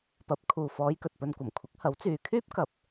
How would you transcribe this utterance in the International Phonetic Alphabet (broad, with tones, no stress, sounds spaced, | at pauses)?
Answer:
p ɐ˨˥ p̚ kʰ uː˨ f ɔː˨˧ j k ɵ˨ t̚ p ɵ˧ n kʷ ɐ˨˩ m kʷʰ ɪ˨˥ k̚ h ɐ˨˥ w t͡s yː˨ kʰ yː˥ p̚ k ɐ˨ p̚